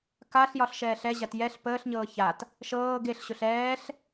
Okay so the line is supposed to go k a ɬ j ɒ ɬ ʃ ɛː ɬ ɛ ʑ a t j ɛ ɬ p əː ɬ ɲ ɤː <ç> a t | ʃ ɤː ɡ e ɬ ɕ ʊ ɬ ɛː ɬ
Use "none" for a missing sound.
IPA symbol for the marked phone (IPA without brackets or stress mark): ç